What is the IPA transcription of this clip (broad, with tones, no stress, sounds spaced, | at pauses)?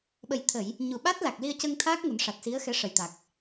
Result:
ɓ ə˨˩ j t̪ʰ ə˨˩˨ j | ɲ u˨˩ ɓ a˦˥ t̚ l a˨˩ k̚ l i˧ ə̯ c ə˧ ŋ t̪ʰ aː˦˥ k̚ ŋ u˨˩˦ n ʂ a˨˩ t̚ s i˧˥ ə̯ x ɛ˧˥ ʂ ə˨˩ j t̪ a˨˩ k̚